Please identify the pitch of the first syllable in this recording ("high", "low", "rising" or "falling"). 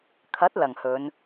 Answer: rising